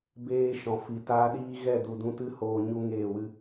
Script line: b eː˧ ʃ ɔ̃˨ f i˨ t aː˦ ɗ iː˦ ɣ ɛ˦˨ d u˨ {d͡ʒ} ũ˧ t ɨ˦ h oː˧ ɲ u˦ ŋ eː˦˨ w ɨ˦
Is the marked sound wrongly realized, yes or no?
yes